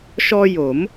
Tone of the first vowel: high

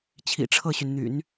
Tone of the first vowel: low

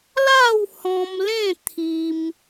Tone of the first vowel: falling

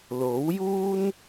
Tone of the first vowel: rising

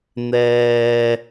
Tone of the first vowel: low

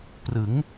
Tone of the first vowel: rising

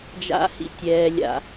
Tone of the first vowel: high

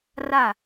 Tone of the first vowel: falling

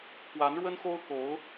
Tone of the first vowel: rising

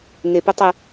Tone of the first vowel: low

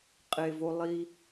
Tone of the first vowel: low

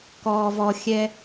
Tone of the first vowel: high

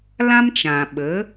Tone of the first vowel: high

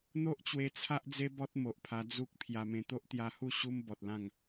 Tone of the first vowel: high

